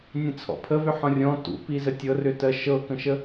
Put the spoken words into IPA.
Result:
nʲə̃t͡sʰɔ̰pʰəvʏ ħɔ̃rʲɔ̃ tṵpizə tʲɤrʏtɜ ʃɤkə̃ʃə

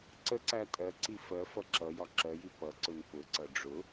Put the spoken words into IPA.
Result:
ǀəǀæ tʼɜǀi fɜ fʌǁʌjɒ ǁɜji pʌǀʊn pʊǀʌ ɖ͡ʐʊ

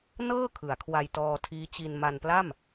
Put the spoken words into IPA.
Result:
nɤː˥˩ kʰɯ˩˦a̯kʰwa˧j tɔː˧tʰiː˦˥t͡ɕi˧n ma˧npla˥˩m

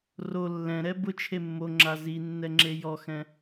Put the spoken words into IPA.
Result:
ro lːɛ̃ɾɛ bʊt͡ʃʰe mːoŋ͡ǁa zinːɛŋ͡ǁe jɔxɛ̃

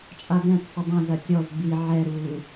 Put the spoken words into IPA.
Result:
t͡ʃʼadɛ̃tsˤʏ dˤɐ̃zɐ tʲɔz bi ʕɛɾuː

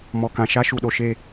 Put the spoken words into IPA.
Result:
mɔ˨kã˨ ʃa˦ʃu˨ɗo˨ʃe˦˨

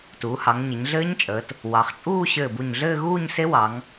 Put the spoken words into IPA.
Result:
tuː˩˧hɑ˩˧ŋɲɘ˩˧ɲɮɘː˦˥ɲ t͡ʃʼəː˩˧t | wɑ˩˧χt͡ʃʼuː˥˧ ɕɘː˧˩bu˧˩ɲɮɘː˥˧ ɣuː˥˧ɲse˦˥wɑ˩˧ŋ

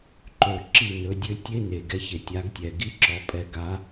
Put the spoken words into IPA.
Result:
ǃø˦˨ ǁi˦˨nɵ˨˦dʲø˦ tʲe˦ne˨˩ɡɛ˦ç e˨˩tʲa˨˦ɡtʲɛ˨˩ ɡi˦ǁɔ˨˦pʼɛ˨˦ ɡa˨˦

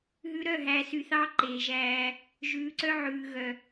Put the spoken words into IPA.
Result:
ɦʉ˨ɾœ˦˨ɦæ˨ sy˨θɑ˦ ǃeː˨ʒæː˦ | ʒʉː˨ǀœ˦ʕʉː˨ɣœ˨

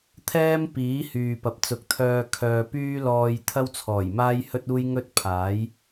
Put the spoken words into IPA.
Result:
t̪ʰɛː˥m piː˨˥hyː˨pɐ˨p̚ t͡sʊ˨k̚t̪ʰœː˧ kʰœː˨pyː˥lɔː˧jt̪ʰɐ˥w t͡sʰɔː˨˩jmaː˥j hɵ˥t̚uː˥j ŋɵ˥t̚ pʰaː˨˥j

